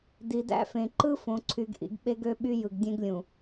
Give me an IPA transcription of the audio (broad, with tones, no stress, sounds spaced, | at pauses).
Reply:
d i˨ d æ̰˦ f ẽ˨ ǃ ɯ˦ f õ˨ ǀʰ y˨ ɡ ʔ ḭ˨ ɡ ɓ e˦ ɡ ø˦ ɓ y˦ j ɯ˨ ɡ dʲ ẽ˦ ɡ lʲ ũ˨